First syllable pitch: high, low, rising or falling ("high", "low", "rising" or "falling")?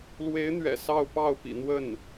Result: rising